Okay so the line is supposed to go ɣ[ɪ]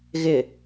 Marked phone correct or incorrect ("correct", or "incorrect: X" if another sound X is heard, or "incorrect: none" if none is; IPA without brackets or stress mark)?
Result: correct